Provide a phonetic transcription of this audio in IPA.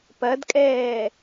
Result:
p ɐ d kʼ ɛː

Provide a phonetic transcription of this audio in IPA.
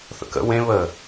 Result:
θ ə̰ k ə̰ w ẽ β ə

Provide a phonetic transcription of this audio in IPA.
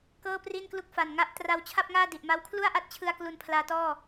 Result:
k ɤː˥˩ p r i˥˩ n k l u˥˩ k̚ f a˨˩ n ŋ a˦˥ ʔ t r a˦˥ w t͡ɕʰ a˥˩ p̚ ŋ aː˥˩ d i˨˩ ʔ m a˦˥ w kʰ l u˥˩ a̯ ʔ a˥˩ t̚ t͡ɕʰ ɯ˧ a̯ k l u˧ n pʰ l aː˧ t ɔː˥˩

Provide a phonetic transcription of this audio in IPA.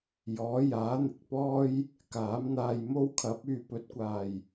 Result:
j ɔː˨˥ j aː˨˥ n̪ ɪ˨ k̚ p ɔː˥ j | k aː˨˥ m n̪ aː˧ j m o˥ w kʰ ɐ˨˥ p̚ yː˨ p ɵ˨˥ t̚ kʷ aː˨˩ j

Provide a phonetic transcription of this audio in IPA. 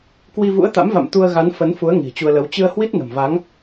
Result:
k w i˧ v ṵ˧˥ ə̯ t̪ a̰˧˥ m v a̰˧˨ m t̪ u˧ ə̯ ɣ a˨˦ n f ə˨˦ n f u˨˦ ə̯ ŋ i̤˨˩ t͡ɕ u˧ ə̯ l ə˨˦ w t͡ɕ ɨ˧ ə̯ h w i˦˥ t̚ n ə̤˨˩ m v a˨˦ ŋ

